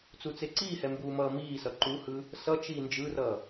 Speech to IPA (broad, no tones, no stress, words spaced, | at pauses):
t͡sut͡seǀiːhɛ mbuːmʌːmiːsʌ ǃuhɯ | sʌt͡ʃiː nd͡ʒɯrʌ